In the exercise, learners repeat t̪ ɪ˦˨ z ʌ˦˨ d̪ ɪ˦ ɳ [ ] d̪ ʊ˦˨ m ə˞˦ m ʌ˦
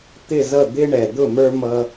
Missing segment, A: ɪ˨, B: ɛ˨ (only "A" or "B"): B